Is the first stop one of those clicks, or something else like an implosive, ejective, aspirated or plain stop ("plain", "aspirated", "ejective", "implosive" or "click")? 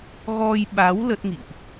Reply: implosive